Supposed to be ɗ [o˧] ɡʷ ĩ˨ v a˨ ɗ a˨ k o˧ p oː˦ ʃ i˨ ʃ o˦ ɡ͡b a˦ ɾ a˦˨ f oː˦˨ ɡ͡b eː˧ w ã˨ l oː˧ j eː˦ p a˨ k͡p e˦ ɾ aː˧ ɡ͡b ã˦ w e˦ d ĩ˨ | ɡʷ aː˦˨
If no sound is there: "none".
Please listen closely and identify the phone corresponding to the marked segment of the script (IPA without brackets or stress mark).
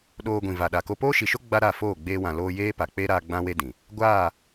oː˧